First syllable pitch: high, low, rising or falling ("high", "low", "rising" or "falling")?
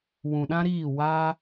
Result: low